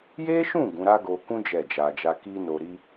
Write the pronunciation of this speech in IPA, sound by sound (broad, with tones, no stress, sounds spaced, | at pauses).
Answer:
j e˦ ʃ ũ˦˨ ɡ ũ˨˦ ɾ a˦ ɡ o˧ k ũ˦ d͡ʒ ɛ˦˨ d͡ʒ a˧ d͡ʒ a˦ k i˦ n o˧ ɾ i˦